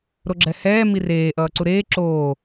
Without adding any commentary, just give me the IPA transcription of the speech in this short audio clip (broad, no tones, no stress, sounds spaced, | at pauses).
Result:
ɾ o ɡ͡ǁ ɛ h ɛː m i r eː ʔ ʌː ǀ u ɾ eː ǁ oː